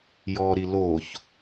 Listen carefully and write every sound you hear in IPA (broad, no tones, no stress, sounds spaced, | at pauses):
j ɔ ɾ i l o ç